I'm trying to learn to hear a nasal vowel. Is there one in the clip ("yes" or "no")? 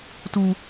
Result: no